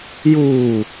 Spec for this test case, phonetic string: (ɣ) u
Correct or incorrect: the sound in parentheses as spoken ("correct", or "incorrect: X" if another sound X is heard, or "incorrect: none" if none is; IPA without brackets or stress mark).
incorrect: j